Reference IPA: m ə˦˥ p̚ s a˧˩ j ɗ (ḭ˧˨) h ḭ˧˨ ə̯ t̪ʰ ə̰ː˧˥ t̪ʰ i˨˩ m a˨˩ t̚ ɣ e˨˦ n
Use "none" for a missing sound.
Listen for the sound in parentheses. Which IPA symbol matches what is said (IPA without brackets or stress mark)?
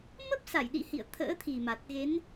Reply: ḭ˧˨